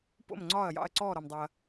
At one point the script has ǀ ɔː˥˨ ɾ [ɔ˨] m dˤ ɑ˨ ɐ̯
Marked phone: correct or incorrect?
correct